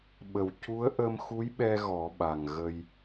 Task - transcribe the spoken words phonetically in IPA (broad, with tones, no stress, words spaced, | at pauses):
ɓə˨˩wcu˧˥ə̯ ʔə˧mxu˧˥jɓɛ˧ ɣɔ˨˩˦ɓa˨˩ŋ ɣə˧j